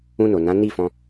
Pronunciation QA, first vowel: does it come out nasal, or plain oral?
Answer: nasal